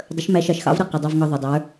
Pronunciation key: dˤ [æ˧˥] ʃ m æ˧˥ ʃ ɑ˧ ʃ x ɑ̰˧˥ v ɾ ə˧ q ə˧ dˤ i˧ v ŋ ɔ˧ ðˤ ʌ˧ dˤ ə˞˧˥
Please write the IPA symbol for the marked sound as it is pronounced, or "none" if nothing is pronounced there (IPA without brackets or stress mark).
ə˧˥